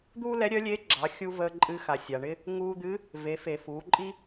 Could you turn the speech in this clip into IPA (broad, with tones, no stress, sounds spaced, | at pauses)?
d̪ uː˥ l ɛ˧˥ ɾʲ œ˧˥ lʲ eː˧˥ ɡ͡ǁ ɑ˩˧ xʲ u˧ v əː˧ ǃʼ ɨ˧ x a˩ sʲ a˩ ɳ ɪ˥ | ŋ uː˧ d̪ ɨ˧˥ | v e˩˧ f e˩ f uː˩˧ ǃʼ i˥